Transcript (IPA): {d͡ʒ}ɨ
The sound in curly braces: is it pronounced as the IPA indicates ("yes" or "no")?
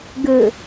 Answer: no